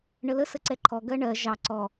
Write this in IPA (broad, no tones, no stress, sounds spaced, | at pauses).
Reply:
ɳ ə l ə s ə ǀ ɛ ǃʰ ɔ ɡ ɜ ɳ ɜ ʒ ɑ ǀ ɔ